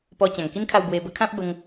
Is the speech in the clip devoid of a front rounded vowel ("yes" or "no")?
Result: yes